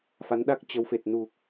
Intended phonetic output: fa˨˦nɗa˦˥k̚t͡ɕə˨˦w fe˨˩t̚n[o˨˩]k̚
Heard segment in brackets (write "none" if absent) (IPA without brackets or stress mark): u˨˩